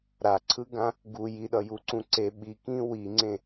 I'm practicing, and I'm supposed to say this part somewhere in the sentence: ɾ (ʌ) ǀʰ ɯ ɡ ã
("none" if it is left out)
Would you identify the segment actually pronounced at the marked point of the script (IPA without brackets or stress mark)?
a